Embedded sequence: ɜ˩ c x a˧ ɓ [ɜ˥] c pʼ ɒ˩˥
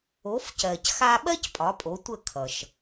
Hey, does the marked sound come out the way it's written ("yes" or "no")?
yes